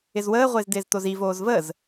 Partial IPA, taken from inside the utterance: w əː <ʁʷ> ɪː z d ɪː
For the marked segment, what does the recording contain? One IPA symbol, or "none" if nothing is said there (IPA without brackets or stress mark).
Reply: ʁʷ